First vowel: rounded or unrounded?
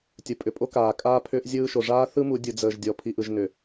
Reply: unrounded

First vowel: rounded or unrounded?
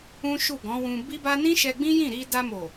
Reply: rounded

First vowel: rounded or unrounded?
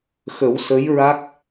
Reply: unrounded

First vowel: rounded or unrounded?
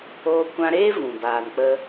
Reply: rounded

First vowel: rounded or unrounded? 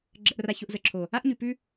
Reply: unrounded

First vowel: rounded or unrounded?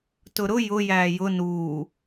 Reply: rounded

